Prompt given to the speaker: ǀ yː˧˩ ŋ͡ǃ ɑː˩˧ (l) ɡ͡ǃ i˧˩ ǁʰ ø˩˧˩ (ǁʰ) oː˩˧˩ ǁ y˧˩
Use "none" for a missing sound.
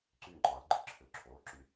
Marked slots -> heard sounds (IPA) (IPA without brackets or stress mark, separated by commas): l, ǁʰ